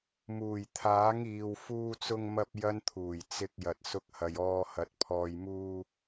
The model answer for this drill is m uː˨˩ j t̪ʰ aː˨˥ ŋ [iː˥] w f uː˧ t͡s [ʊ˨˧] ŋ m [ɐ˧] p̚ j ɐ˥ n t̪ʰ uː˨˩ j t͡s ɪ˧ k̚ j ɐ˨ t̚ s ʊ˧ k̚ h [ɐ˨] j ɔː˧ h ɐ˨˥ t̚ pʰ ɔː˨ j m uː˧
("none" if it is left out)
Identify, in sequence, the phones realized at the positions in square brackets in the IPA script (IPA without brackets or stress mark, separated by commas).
iː˨, ʊ˧, ɐ˧, ɐ˨